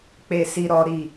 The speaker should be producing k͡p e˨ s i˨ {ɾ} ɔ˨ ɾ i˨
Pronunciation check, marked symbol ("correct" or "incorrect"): correct